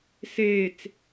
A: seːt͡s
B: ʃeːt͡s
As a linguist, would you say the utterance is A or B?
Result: A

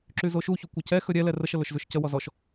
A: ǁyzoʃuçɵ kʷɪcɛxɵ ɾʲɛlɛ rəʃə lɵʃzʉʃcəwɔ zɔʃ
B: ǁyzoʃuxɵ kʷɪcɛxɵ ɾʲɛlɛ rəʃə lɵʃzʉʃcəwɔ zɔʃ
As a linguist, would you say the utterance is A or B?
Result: A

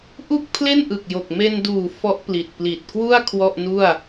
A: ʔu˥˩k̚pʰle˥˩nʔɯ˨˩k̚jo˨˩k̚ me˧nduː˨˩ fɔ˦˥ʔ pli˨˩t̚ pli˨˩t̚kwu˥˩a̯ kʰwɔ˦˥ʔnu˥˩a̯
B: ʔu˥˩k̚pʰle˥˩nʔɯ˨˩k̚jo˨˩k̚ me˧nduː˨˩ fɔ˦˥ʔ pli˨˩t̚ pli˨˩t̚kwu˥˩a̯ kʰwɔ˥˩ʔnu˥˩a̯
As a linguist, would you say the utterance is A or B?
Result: B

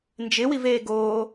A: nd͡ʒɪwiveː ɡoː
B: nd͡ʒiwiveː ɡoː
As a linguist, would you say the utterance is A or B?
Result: A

